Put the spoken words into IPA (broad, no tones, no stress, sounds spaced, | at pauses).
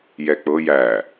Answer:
j ɛ k͡p ɤ j æ